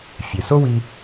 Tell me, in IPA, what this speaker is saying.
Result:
fʲ e˩ s o˥ w i˧

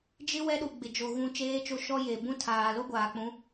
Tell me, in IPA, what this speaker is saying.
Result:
d͡ʒ ɪ˦ w ɛ˦ ɗ u˨ ɡ͡b ɪ˨ d͡ʒ o˨ ɣ ũ˨ t͡ʃ eː˦ t͡ʃ o˦ ʃ ɔ˦ j e˨ b ũ˦ tʰ aː˨ l o˦ ɡʷ aː˨ k͡p ũ˨˦

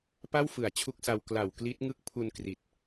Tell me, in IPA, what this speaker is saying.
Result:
p a˥˩ w f ɯ˨˩ a̯ t͡ɕʰ u˦˥ k̚ s a˧ w k l a˨˩ w k l i˦˥ t̚ ŋ ɯ˦˥ k̚ pʰ u˧ n k r i˨˩ t̚

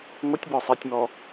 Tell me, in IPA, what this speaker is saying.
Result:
ŋʷ ə tʲ b ɔ sˤ ɛ tʲ m ɔ

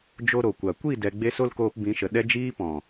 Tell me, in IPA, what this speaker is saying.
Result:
d͡ʒ o˧ ɾ o˨ kʷ a˨ kʷ i˦˨ d ɛ˧ ɡ͡b e˦ s o˦ l k oː˧ p b ĩ˨˦ ʃ ə˨ ɗ ɛ˦ d͡ʒ iː˦ p ɔ̃˨

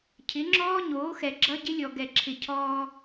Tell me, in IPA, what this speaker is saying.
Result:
cʰ ɪ˨˦ ŋ͡ǁ ɔː˦ ɲ oː˨˦ x ɛ˨ ɡ͡ǁ ʌ˦ ɟ ɪ˦ lʲ ɔ˨ ɡ ɛ˨ ǁʰ ɪ˨ cʰ ɔː˦

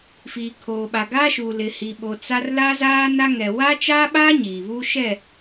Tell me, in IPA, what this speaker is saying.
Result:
f iː˨ kʰ oː˨ ɓ a˨ ɡ aː˦ ʃ uː˨ l ɪ˨ h i˨ ɓ o˨ t͡s a˦ r l a˦ z aː˦ n a˦ ŋ ɛ˨ w a˦ t͡ʃ aː˦ ɓ aː˦ ɲ iː˨ β uː˦ ʃ ɛ˦˨

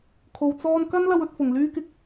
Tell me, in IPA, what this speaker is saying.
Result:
kʰ o˨ w t͡s ɔː˧ n k ɐ˥ n l ɐ˧ w ɵ˨ t̚ f ʊ˨˩ ŋ l yː˥ k ɪ˧ k̚

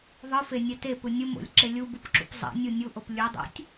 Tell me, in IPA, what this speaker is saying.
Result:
ðˤ ɯ f e nʲ ɛ t e p ɯ nʲ ɯ m o̰ lʲ ǁ e lʲ u b u p ǁ ṵ p zˤ ɛ̰ nʲ u nʲ u ʔ o p lʲ u dˤ a̰ tʲ

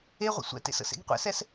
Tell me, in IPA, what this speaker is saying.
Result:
e ʁʷ ə̰ sʷ ɛ̰ t ḛ s ə̰ s ḛ ɡ qʷ ɛ̰ s ɛ s

